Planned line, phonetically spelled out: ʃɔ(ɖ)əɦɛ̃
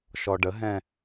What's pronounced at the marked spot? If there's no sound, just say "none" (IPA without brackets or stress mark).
ɖ